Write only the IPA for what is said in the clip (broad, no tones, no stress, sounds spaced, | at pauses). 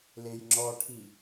l e j ŋ͡ǁ ɔ ʈʰ i